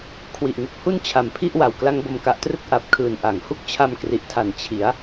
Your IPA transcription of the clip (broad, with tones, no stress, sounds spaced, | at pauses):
kʰ w i˨˩ ʔ ŋ u˨˩ k̚ h u˥˩ n t͡ɕʰ a˨˩ m pʰ i˥˩ ʔ w a˨˩ w k l a˦˥ ŋ b o˧ m k a˨˩ ʔ t r ɯ˦˥ k̚ ʔ a˨˩ p̚ kʰ ɯː˨˩ n ʔ a˩˦ ŋ h u˦˥ k̚ t͡ɕʰ a˧ m k r i˨˩ ʔ tʰ a˨˩ n t͡ɕʰ i˩˦ a̯